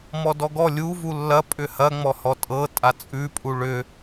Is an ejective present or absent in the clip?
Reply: present